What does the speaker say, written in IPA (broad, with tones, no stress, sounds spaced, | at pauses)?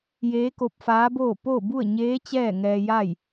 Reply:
j eː˧˥ k o˧ p̚ f aː˧˥ b oː˥˨ p o˥˨ b u˥˨ ə̯ ɲ eː˧˥ t͡ɕ ɛː˥˨ ŋ ɛː˧ j a˥˨ j